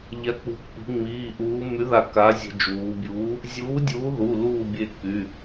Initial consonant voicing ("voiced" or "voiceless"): voiced